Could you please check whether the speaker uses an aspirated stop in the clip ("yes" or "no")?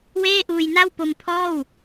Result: yes